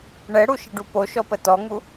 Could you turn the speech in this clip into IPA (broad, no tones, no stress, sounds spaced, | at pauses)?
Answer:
ɳ ɛ ɽ u ʃ ə ɖ u p o ʃ ɔ p ə t ɔ ŋ u